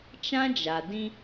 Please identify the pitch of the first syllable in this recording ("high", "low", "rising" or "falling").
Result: high